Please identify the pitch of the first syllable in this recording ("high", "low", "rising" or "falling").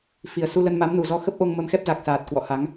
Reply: low